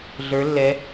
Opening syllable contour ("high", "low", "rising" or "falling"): rising